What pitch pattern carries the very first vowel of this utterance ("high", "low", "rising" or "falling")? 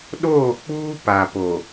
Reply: falling